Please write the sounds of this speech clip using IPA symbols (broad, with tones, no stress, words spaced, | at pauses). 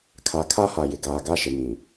kʰa˨kʰa˦ha˨ jɪ˨ɡaː˨ɡa˦ ʃɪ˨mĩ˨